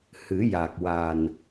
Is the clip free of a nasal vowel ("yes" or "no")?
yes